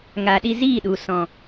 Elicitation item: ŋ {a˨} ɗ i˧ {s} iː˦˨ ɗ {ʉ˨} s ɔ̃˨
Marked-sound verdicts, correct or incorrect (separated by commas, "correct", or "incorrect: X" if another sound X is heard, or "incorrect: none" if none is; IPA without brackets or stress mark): correct, incorrect: z, incorrect: u˨